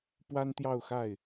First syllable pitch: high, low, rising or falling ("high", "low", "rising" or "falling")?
high